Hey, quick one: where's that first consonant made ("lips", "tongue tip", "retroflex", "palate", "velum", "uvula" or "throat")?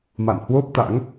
lips